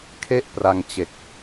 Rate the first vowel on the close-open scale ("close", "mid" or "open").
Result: mid